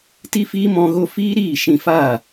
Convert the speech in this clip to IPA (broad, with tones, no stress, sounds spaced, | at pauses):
t i˦ f iː˦ m ɔ̃˦ ɣ o˦ f iː˦ ɾ iː˦˨ ʃ ĩ˧ f aː˦˨